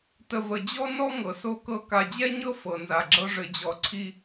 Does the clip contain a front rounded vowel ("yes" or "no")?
no